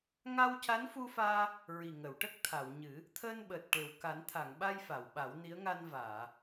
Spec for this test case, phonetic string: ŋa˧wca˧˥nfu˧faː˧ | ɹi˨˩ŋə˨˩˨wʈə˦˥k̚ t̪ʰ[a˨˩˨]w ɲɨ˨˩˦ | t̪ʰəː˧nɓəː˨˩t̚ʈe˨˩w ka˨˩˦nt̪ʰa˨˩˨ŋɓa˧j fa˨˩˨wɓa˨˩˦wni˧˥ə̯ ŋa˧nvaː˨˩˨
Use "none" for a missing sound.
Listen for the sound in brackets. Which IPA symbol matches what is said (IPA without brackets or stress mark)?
a˨˩˨